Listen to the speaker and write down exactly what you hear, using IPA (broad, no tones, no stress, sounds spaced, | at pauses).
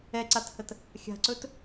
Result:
ɛ ǀ a t h ə t | xʲ a̤ ǀ ɵ t